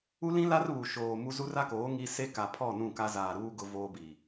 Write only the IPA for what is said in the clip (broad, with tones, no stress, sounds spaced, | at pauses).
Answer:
u˦ l ĩ˦ l a˦ r β u˨ ʃ oː˨ m u˦ z u˦ r a˦ k oː˨˦ ŋ i˦ s e˦ k a˨ pʰ ɔ˦˨ n ũ˦˨ k a˦ z aː˨ ɾ uː˦ ɡ ʊ˦ v oː˦ b iː˨